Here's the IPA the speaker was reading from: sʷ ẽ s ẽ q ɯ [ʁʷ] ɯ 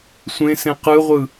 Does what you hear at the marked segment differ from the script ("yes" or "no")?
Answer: no